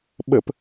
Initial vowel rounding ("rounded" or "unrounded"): unrounded